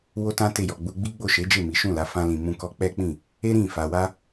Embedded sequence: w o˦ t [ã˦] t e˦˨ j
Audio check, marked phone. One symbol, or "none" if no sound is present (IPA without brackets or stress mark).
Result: ã˦